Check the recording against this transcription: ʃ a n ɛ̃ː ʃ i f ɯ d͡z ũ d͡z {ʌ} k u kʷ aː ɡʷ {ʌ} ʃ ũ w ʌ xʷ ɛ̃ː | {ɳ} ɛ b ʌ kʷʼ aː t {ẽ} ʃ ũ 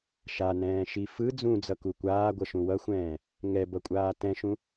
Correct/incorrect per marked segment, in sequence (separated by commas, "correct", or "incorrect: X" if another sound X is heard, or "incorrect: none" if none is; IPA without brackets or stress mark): correct, correct, incorrect: ŋ, incorrect: ɛ̃